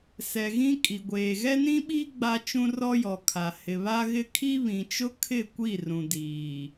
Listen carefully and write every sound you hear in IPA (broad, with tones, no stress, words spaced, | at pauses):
sɛ˨ɣĩ˦kʼi˨ɡʷeː˨ ɣɛ˦nĩ˦ɓiː˦ ɡ͡ba˦t͡ʃũ˦rɔ˦jɔ˨ kʰa˨ hɪ˨βa˦ɣɪ˦ kʰi˦βĩ˨t͡ʃʊ˦ kʰɪ˦˨ kʷi˦˨rũ˨diː˨